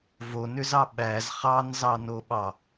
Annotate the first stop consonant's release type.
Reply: implosive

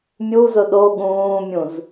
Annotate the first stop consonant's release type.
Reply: implosive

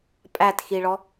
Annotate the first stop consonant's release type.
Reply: ejective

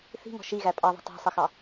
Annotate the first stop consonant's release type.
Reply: ejective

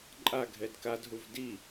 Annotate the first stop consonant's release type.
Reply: click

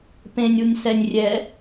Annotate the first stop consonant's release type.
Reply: plain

